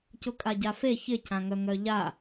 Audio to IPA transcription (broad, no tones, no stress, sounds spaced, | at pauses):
c ʊ kʼ a ɟ a f e ç ɪ c ã ŋ œ ŋ œ ʎ a